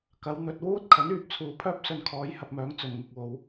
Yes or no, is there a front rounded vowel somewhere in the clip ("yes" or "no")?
yes